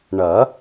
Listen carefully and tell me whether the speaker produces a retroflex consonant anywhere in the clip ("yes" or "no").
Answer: yes